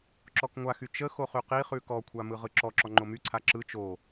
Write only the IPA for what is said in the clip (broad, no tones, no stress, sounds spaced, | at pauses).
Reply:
ǁ ɔ k ŋʷ a x y t͡ʃ ə x o χ y q i χ ʉ k ɔ kʷʰ a m ɯ ʁ ɯ ǁ ɔ ǁ ɔ ŋ͡ǃ o m y ǀʰ a ǁ ɯ t͡ʃ o